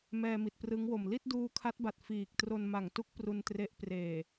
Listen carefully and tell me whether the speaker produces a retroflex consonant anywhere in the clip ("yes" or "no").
no